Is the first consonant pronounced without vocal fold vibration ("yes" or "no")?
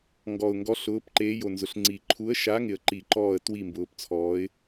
no